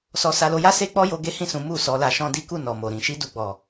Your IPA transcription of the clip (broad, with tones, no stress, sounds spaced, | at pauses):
s ɔ˧ s a˧ l o˧ j a˦ s e˦ k͡p ɔ˦ j o˧ ɡ e˦ h ĩ˦˨ s ũ˨˦ m u˦˨ s ɔ˨˦ l a˧ ʃ ɔ̃˦ d i˦ k u˦˨ n ɔ˨ m o˨ ɾ ĩ˨ ʃ i˧ d u˨ ɡ͡b ɔ˨